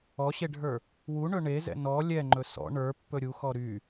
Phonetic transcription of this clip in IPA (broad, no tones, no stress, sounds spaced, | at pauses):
ɔ ɕ e ɖʱ ə˞ | w u ɳ ɵ ɳ e z ɛ̰ n ɔ lʲ ɛ ŋ͡ǃ ɵ s ɔ̰ ɳ ə˞ pː ɵ ɾʲ u x ɔ ɾ y